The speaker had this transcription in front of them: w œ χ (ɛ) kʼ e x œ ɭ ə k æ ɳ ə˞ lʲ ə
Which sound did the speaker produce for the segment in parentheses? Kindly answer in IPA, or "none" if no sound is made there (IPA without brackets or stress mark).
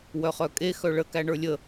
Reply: œ